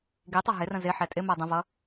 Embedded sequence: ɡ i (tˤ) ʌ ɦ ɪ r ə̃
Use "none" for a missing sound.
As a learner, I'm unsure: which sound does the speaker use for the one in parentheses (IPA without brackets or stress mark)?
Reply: tˤ